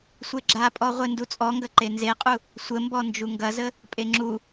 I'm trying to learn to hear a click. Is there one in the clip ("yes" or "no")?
yes